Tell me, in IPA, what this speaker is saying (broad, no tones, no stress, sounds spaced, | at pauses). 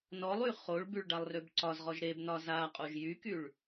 n ɔ lˠ y χ o ɭ b y ɭ ɖ a lˠ r ø b ǀ ɒ z ʁ ɔ ʒ ɾ e b n ɒ z a qʼ o ʒ j y k y ɭ